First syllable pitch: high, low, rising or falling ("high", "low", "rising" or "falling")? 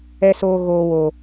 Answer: high